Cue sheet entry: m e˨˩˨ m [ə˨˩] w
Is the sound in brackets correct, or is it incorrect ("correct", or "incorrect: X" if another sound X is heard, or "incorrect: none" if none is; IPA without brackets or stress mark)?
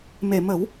incorrect: ə˨˩˦